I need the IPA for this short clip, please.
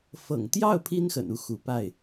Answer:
f ɤ̰˨˩ ŋ t̪ j ɑ˥˩ ʊ̯ pʰ i˥ n x ə̰˨˩ n u˥˩ x u˧˥ p a˥˩ ɪ̯

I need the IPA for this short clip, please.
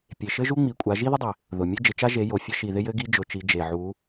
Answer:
pʲ e˨˩ ʃ ɘ˥ ʒ u˥ ŋ͡m i˨˦ kʷʼ a˨˦ ʒ i˥ ð ɪ˥ dˤ ɪ˨˩ | ð ʊ˨˩ mʲ e˥ d͡ʒ ɪ˨˦ t͡ʃ a˥ ʒ e˨˦ j o˨˩ fʲ ɘ˥ ʃ i˨˩ ð ɪ˥ j ɘ˥ ɡ i˥ d͡ʒ ʊ˨˦ t͡ʃ i˨˦ d͡ʒ e˨˩ ʕ u˨˦

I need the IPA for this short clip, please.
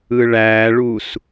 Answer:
ɯ ɭ æ ɭ u s

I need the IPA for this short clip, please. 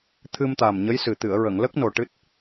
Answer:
t̪ʰ ɨ˧ m t̪ a˨˩ m ɲ ə˧˥ j s ɨ˨˩ t̪ ɨ˨˩˨ ə̯ ɹ ə˨˩˨ ŋ l ə˦˥ k̚ n o˨˩ ʈ ɨ˦˥ t̚

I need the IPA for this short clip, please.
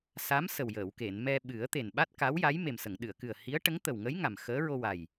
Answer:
s a˧˥ m s ə˨˩ w j əː˨˩˨ w k e˨˩˨ n m ɛ˧ ɓ ɨ˨˩˦ ə̯ t̪ e˨˩ n ɓ a˦˥ t̚ k a˧˥ w j a˧˥ j m e˨˩ m s ə˨˩˨ ŋ ɗ ɨ˨˩˨ ə̯ k ɨ˨˩ ə̯ h i˧˥ ə̯ ʈ ə˧˥ ŋ t̪ ə˨˩ w ŋ əː˧˥ j ŋ a˨˩ m x əː˧˥ ɹ o˧ w a˨˩ j

